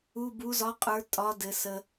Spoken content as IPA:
u˩˧˩ b u˩˧ z ɒ˩˥ qʼ ə˞˩˧ tʼ ɒ˩˧ d ɘ˩ s ə˩

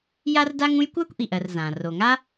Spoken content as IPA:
j a˥ r d a˥ ŋ ũ˥ j kʷ a˥ kʷ ʔ i˩ ʔ ɜ˩ r z ã˩ r o˩ ŋ a˥

